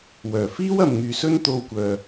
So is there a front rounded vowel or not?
yes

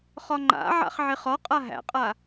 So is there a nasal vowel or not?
no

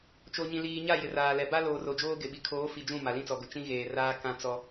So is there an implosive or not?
yes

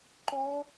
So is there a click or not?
yes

